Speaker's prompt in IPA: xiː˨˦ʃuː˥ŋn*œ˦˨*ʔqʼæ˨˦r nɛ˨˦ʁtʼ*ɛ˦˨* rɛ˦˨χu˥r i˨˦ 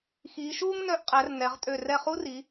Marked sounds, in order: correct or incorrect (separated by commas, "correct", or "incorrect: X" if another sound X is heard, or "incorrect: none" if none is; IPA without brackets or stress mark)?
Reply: correct, incorrect: ø˦˨